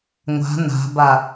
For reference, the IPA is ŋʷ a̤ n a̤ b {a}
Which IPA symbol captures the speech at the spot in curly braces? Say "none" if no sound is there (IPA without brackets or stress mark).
a